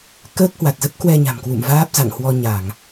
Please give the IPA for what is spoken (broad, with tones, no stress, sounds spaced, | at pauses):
k əː˦˥ k̚ h w a˨˩ t̚ z ə˦˥ p̚ k w ɛ˧ ɲ a̤˨˩ m k w ṵ˧˨ m v aː˦˥ p̚ z a̰˧˨ ŋ h w ɔ˧ ɲ a˧˩˨ ŋ